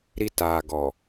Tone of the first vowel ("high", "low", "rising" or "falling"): high